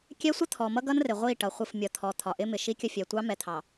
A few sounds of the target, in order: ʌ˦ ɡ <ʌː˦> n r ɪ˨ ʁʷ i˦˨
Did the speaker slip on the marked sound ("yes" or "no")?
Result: yes